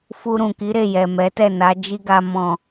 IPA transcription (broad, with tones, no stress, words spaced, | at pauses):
fu˧ɾũ˨ki˨˦ɾe˦˨ jɛ˨mɛ˨˦tɛ˦˨na˨˦ d͡ʒi˦ɡa˧ mɔ̃˨